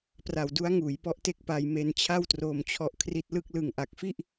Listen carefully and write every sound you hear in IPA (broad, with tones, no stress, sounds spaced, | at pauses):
p r a˨˩ w d u˦˥ a̯ ŋ uː˩˦ j p ɔ˦˥ ʔ t e˥˩ k̚ p a˧ j m e˧ n t͡ɕʰ a˥˩ w t r oː˧ m t͡ɕʰ ɔ˦˥ ʔ kʰ r i˦˥ t̚ l ɯ˥˩ k̚ l ɯ˨˩ ŋ ʔ a˨˩ k̚ f i˥˩ ʔ